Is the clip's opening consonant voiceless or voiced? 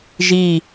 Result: voiced